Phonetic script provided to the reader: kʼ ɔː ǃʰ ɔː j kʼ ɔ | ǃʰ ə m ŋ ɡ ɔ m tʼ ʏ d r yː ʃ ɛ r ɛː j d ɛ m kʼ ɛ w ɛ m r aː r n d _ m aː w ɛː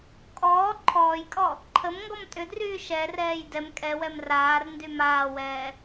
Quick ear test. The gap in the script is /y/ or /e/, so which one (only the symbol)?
y